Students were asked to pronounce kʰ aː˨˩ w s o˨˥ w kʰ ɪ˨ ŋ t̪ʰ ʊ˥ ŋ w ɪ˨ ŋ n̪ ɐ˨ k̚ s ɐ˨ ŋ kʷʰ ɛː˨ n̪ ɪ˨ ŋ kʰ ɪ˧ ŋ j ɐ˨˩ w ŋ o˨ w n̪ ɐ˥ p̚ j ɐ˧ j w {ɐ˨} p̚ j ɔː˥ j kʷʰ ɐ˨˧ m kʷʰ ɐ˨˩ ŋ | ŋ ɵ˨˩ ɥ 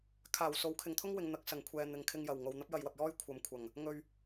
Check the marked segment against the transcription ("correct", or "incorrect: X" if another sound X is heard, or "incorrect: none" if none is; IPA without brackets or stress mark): correct